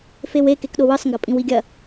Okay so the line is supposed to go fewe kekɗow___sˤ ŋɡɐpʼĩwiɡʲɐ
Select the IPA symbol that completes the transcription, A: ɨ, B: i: A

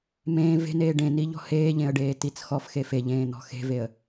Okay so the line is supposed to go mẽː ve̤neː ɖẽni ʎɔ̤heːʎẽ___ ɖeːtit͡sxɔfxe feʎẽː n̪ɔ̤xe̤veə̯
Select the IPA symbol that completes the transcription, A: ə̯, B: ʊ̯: A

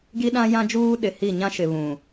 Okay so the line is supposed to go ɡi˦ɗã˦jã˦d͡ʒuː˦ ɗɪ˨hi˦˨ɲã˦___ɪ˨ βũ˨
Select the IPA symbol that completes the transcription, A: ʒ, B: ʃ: B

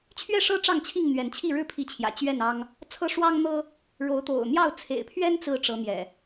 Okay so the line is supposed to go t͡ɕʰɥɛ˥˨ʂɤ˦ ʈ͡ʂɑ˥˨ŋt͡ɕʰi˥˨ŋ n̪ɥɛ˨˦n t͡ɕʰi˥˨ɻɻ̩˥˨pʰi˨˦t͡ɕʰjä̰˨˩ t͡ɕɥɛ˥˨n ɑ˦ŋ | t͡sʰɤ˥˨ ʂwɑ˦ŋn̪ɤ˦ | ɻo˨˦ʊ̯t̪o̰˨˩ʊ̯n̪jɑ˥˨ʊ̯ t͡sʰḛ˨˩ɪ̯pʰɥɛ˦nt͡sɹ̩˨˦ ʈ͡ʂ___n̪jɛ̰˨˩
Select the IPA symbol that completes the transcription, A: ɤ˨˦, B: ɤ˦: A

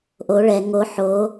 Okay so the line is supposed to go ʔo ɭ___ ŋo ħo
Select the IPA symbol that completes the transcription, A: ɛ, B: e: A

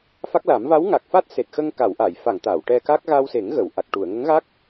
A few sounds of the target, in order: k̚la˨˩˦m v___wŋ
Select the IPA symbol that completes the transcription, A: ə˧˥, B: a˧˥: B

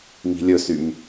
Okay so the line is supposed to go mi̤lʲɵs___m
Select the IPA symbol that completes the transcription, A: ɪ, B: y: B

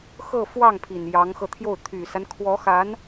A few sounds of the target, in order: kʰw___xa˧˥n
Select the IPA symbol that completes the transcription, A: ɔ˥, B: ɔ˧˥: B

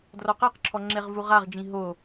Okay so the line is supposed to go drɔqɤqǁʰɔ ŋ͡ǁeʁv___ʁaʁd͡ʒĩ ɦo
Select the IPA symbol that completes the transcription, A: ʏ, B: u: B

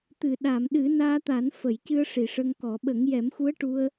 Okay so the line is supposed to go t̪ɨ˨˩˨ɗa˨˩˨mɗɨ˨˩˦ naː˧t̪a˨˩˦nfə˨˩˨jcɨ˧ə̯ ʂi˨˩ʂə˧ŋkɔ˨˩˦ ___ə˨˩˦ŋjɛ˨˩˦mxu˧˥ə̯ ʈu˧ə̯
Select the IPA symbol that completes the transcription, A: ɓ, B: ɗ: A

